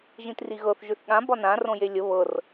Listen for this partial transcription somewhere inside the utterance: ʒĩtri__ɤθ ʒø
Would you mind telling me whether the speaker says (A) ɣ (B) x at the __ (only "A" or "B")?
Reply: A